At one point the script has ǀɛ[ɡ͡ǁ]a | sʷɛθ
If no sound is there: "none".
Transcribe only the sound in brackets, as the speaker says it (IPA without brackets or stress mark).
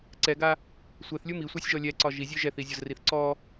ɡ